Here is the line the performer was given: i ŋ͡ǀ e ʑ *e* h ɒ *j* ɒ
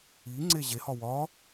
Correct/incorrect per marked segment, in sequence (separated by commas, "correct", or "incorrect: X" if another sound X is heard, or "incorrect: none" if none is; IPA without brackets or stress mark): correct, incorrect: w